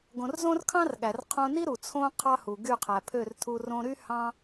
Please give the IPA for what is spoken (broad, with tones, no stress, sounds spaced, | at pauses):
ɡ õ˨ r z õ˦ r kʰ ɑ̃˦ r ɠ æ˨ r qʰ õ˧ n i˦ ɾ u˨ t͡sʰ õ˦ qʰ ɑ˦ h u˨ ɡ y˦˨ qʰ æ˨ pʰ ø˦˨ r tʰ u˧ r õ˧ ɾ y˦ h ɑ̃˦